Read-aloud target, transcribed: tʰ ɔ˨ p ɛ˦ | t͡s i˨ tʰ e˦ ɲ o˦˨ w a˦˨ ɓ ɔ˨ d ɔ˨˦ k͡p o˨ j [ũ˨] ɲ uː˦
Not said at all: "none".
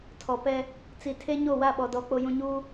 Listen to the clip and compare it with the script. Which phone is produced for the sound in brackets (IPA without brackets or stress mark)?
ũ˨